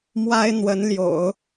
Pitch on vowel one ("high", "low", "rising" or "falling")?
high